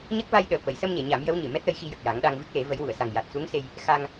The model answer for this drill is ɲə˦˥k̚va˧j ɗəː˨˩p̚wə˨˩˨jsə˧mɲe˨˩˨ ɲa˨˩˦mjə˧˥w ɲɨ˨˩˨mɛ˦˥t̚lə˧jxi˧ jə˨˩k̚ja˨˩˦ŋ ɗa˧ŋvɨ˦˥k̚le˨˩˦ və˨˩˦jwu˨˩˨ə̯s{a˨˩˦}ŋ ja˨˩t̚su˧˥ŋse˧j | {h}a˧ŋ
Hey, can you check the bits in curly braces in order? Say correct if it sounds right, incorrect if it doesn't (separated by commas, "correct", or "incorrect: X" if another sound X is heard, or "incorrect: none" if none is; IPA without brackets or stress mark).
incorrect: a˨˩, incorrect: x